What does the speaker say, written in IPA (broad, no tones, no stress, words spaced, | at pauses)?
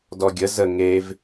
dɔɡʲə zə ŋev